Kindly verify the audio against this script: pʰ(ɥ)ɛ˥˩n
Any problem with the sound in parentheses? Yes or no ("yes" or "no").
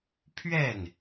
no